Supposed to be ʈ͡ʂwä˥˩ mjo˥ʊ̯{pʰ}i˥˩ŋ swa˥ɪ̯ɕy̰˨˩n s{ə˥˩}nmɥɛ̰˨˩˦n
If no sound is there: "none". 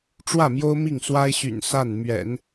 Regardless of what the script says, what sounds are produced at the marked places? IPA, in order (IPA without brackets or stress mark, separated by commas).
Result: m, a˥˩